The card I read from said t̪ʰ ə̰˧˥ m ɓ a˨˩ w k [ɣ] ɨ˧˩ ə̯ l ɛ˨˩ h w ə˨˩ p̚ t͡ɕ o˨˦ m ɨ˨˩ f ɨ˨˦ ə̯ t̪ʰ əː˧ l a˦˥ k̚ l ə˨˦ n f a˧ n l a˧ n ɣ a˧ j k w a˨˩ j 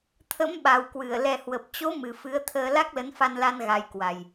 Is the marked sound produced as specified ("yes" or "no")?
no